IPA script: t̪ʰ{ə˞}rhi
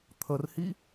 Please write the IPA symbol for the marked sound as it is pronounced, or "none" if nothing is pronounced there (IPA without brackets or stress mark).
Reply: ə